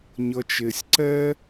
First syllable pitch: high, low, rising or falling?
low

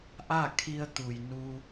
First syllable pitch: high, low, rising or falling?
falling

